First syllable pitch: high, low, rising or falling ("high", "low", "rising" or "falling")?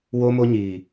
high